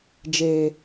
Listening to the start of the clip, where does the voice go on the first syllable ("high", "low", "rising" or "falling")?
low